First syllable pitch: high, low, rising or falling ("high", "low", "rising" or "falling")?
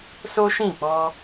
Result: high